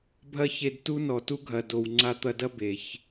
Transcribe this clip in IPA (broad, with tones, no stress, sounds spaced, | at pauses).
bʱ ɐ˦ ç e˧ d t u˦ n ɔ˨ t u˦ ɡʱ ɐ˨ d o˨ w ŋ͡ǀ a˧ t̪ ɐ˧ d ɐ˦ b e˨ ç